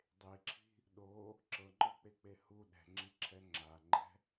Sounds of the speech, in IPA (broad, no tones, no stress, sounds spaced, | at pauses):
dˤ e ǁʰ i̤ | ɗ o | ǁ ɤ ŋ͡ǃ ɔ k͡p e k͡p e h u ɗ ɛ̤ ŋ͡ǁ i ǁʰ ɛ ŋ͡ǁ a ŋ͡ǃ ɛ̤